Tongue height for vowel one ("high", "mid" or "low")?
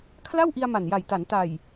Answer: low